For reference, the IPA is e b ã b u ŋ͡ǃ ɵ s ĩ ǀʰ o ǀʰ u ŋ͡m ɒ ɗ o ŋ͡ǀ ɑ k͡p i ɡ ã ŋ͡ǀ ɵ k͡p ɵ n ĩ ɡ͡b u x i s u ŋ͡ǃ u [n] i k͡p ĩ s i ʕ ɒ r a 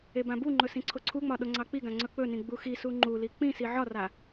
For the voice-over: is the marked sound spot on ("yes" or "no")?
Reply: no